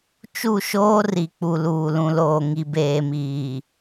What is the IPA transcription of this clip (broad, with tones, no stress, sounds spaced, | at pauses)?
t͡ʃ u˦˨ ʃ oː˦ r i˨ k͡p u˨ l uː˨ l ũ˨ l oː˨ ŋ i˨ b eː˨ m iː˨